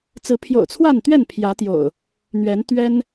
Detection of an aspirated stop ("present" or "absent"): present